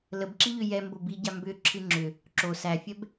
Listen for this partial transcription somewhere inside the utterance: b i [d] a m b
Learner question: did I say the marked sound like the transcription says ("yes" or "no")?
no